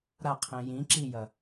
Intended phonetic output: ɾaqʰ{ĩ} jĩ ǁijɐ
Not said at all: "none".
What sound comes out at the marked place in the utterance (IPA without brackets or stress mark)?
ẽ